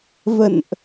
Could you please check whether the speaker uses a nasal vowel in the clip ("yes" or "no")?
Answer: no